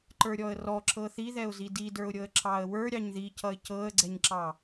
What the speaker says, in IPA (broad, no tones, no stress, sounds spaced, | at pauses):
ǃ ə˞ ɾʲ ɔ ə̯ r ɔ ǁ ɤ θ i ð ɛ ʊ̯ z i d i d ə˞ ʊ̯ ɾʲ ɤ ə̯ ǁ ɑ ə̯ w ə˞ ɾʲ ɑ ɲ ð i c ʌ ɪ̯ c ɤ ə̯ ɡ͡ǀ ɛ ɲ ǁ ɑ